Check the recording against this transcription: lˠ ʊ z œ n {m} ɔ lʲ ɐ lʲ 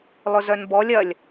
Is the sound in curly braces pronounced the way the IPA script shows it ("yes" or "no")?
no